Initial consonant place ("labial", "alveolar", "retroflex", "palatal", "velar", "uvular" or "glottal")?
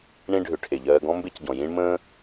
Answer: retroflex